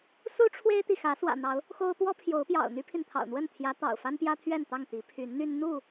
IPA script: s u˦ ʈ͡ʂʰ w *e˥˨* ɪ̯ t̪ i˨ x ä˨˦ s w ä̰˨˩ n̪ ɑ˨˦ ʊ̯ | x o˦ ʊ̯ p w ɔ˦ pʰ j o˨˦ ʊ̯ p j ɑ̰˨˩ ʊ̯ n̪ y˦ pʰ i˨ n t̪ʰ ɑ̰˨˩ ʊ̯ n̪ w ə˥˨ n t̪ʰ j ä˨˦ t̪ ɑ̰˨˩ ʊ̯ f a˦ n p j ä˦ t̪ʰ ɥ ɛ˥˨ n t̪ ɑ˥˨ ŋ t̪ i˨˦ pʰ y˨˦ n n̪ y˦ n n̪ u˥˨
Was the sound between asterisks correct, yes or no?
no